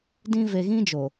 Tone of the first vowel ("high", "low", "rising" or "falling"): high